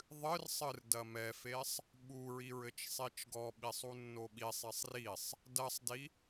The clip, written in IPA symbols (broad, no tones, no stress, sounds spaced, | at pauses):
ðˤ ɨ r sˤ ɨ r d ɐ m ɛ f e sˤ | ɓ u ɹ i ɹ ɘ t͡ʃ sˤ i t͡ʃ ɡ ɔ ɓ i sˤ u nː o ɓ i sˤ e sˤ r i sˤ | d ɐ sˤ d i